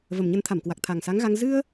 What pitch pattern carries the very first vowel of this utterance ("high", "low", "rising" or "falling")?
low